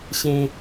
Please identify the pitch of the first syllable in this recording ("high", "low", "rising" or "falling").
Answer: high